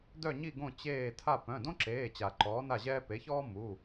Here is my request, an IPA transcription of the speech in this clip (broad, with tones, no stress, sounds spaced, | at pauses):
d œ˥˨ ɲ i˥˨ ɡ õ˥˨ t͡ɕ eː˥˨ tʰ a˥˨ p œ̃˩˧˩ d õ˥ ǁ eː˩˧˩ t͡ɕ a˨˩˦ ǃ ɔː˨˥ n a˥˨ ʑ ɛː˥ p e˨˥ ç ɔː˥ m u˩˧˩